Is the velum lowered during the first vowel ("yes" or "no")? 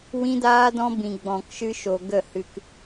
yes